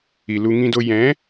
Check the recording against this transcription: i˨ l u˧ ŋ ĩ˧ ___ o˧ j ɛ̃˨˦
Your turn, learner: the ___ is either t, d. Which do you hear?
d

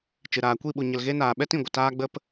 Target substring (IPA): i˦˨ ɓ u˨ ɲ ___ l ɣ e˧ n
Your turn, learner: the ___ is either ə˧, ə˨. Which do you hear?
ə˨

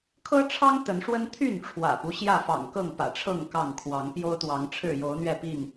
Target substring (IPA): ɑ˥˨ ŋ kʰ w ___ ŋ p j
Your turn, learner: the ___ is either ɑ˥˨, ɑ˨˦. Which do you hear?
ɑ˨˦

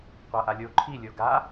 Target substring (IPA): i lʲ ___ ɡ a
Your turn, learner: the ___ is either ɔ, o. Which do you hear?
o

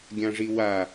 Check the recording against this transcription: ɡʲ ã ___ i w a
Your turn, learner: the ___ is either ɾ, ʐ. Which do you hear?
ʐ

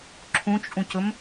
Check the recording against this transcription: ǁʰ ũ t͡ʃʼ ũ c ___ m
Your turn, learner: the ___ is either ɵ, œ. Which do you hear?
ɵ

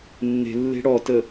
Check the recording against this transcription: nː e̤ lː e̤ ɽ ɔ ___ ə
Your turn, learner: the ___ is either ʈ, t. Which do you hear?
t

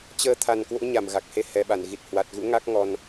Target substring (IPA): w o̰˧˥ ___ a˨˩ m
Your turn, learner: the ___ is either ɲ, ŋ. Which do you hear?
ɲ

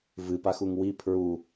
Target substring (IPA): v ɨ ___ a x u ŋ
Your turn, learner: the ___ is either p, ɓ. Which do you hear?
p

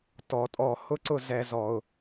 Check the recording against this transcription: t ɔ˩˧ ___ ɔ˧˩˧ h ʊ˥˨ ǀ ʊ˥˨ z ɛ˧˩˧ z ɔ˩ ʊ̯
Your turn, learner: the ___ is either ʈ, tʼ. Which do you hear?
tʼ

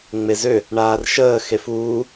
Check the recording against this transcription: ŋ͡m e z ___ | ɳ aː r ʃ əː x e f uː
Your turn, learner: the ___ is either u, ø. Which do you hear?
ø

